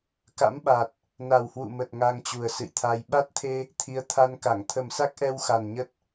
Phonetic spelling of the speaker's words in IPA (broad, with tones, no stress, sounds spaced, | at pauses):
k a̰˧˥ m ɓ a˨˩ t̚ | n a˨˩ w h w ṵ˧˨ m ə˨˩ t̚ ŋ a˧ ŋ t͡ɕ u˨˩ ə̯ s ɨ̰˧˨ j t̪ʰ a˧ j ɓ a˦˥ t̚ t̪ʰ e˧ | t̪ʰ i˨˦ ə̯ t̪ʰ a˧ n k a˧˩ ŋ t̪ʰ ə˨˩ m s a˦˥ k̚ ʔ ɛ˧ w x a˨˩ n ɲ ə˦˥ t̚